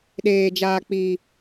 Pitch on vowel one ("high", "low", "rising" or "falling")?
low